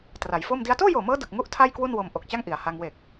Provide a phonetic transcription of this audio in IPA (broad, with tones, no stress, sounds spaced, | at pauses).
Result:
t r a˩˦ j f o˥˩ m d i˧ a̯ t oː˥˩ j oː˨˩ m ɤː˦˥ d ɯ˨˩ k̚ ŋ u˥˩ ʔ tʰ a˥˩ j k w u˥˩ n w o˧ m ʔ o˨˩ k̚ t͡ɕ a˥˩ ŋ ʔ i˩˦ a̯ h a˧ ŋ w e˨˩ k̚